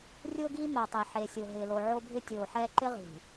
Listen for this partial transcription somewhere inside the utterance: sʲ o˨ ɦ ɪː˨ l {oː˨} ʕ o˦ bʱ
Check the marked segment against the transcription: incorrect: o˨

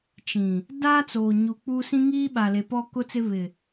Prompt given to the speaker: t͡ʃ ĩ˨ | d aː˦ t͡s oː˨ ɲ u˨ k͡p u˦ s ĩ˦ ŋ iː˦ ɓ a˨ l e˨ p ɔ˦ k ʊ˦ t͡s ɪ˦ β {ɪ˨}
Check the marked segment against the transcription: correct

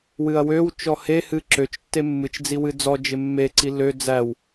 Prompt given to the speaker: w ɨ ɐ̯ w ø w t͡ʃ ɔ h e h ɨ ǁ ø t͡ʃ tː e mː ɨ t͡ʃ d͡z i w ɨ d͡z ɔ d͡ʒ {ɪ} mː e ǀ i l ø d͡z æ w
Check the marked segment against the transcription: correct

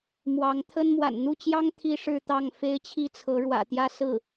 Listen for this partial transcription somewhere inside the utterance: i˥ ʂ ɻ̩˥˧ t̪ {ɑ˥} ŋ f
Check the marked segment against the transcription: incorrect: ɑ˥˩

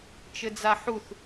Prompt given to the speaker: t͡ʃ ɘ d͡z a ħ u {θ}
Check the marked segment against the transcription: correct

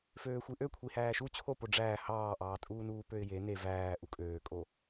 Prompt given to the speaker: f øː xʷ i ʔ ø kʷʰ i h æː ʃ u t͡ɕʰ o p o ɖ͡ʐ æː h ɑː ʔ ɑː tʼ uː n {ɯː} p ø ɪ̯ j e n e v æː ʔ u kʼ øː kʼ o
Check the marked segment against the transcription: incorrect: uː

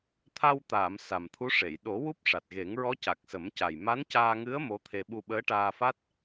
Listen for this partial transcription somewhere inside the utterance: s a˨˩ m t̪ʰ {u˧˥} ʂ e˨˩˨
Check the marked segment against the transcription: correct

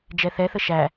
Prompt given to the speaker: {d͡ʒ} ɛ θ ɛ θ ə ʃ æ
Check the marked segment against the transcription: correct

